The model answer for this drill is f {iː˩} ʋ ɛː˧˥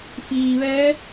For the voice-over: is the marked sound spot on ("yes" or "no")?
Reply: yes